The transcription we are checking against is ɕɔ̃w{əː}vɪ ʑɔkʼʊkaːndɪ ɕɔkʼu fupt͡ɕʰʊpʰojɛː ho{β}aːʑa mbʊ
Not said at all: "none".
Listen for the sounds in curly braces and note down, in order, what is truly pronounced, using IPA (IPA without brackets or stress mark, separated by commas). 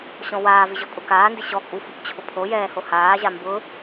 aː, h